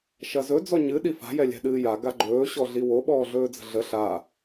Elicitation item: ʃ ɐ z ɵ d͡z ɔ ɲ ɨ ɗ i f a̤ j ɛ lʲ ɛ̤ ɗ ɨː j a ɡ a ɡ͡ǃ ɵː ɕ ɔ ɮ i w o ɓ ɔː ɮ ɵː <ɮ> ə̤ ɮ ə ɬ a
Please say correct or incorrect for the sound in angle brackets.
incorrect